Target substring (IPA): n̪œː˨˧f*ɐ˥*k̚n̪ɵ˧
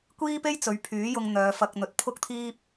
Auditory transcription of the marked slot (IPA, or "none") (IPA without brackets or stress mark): ɐ˧